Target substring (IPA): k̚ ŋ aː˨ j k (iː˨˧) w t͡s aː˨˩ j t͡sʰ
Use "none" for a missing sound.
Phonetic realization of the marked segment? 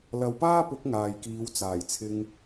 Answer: iː˨˧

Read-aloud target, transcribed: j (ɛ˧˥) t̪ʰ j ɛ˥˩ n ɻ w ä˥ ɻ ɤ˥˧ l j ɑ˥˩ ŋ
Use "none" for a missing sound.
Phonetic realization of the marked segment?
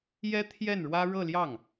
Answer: ɛ˥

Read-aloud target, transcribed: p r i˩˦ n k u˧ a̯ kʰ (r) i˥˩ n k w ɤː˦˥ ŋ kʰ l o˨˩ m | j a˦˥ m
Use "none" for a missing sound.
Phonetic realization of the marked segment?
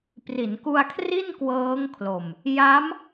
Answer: r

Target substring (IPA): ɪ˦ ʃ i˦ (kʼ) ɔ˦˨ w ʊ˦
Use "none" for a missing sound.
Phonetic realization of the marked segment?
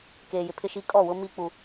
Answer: kʼ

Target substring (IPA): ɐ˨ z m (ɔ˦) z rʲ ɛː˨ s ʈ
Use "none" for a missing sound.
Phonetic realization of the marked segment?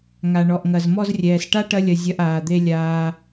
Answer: ɔ˧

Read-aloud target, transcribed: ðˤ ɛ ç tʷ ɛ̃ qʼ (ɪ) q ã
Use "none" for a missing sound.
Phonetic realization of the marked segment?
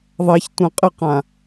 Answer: ɪ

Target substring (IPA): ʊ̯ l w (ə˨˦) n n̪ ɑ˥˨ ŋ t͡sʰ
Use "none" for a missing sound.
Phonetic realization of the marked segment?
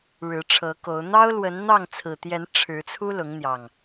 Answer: ə˨˦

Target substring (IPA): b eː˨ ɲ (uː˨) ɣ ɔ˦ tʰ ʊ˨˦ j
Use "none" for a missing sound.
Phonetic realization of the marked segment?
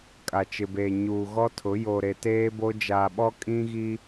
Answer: uː˨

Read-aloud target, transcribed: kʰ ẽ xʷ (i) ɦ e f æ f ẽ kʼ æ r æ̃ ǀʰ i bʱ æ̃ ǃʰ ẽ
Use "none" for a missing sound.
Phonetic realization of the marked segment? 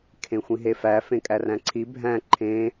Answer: ĩ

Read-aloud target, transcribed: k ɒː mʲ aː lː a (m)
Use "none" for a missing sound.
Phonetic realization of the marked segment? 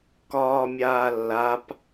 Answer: p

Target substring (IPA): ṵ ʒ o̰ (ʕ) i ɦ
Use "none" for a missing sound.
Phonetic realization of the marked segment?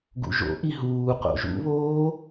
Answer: ʔ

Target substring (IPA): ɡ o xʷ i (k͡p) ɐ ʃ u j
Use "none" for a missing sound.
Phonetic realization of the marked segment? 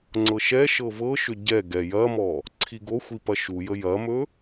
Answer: p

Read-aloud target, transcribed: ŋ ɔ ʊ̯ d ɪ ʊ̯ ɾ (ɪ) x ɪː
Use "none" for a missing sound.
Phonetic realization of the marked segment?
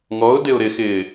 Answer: ɪ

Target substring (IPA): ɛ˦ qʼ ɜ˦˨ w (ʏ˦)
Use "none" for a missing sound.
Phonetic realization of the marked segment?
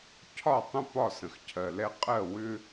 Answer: ʏ˦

